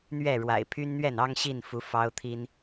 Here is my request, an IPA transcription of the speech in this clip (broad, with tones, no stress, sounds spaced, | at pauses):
n̪ ɥ ɛ˥˨ ɻ w a̰˨˩ ɪ̯ pʰ y˦ n n̪ ɥ ɛ˥˨ n ɑ˦ ŋ ɕ i˥˨ n f u˨˦ f ɑ˦ ʊ̯ t̪ʰ i˦ n